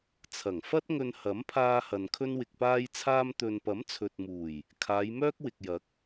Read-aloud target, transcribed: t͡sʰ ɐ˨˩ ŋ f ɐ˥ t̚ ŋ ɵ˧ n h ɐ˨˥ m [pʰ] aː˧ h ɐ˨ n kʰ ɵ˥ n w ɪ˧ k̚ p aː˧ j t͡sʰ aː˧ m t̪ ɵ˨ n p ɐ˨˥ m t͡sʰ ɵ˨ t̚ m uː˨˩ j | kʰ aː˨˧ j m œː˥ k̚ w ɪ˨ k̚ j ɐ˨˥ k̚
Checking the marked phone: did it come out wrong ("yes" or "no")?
no